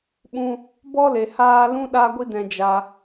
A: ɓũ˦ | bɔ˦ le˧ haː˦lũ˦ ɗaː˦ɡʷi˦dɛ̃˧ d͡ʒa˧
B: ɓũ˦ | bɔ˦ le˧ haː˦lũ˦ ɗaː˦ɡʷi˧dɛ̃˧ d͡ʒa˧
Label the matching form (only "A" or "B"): A